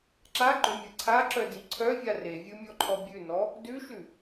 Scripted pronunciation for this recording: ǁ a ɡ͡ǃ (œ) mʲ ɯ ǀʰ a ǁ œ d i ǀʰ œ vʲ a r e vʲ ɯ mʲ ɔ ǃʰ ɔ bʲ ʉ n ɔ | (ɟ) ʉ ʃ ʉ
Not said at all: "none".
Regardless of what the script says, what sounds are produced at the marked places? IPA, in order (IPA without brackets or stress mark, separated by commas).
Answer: œ, d